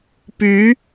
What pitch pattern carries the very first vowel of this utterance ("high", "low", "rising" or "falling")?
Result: rising